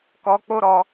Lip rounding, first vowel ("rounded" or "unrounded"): rounded